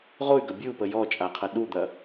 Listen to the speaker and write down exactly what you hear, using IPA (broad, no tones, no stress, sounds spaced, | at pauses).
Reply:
ʁ o y̯ ɡ ɐ bʲ ʉ u̯ p ə j ɔ t͡ʃʼ a qʰ ɐ ɗ u d̪ ɐ